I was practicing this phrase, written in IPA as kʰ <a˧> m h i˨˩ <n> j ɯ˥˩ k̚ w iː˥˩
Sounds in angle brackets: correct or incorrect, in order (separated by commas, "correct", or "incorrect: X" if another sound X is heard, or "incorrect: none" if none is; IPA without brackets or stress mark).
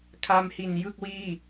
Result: correct, correct